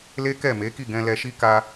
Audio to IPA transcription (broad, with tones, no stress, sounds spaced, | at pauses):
l e˦ k ɛ˦˨ m e˨˦ k i˦˨ ɡ ɛ̃˧ l ɛ˧ ʃ i˦ k a˦